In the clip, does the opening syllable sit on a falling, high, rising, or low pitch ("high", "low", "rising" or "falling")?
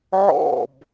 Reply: falling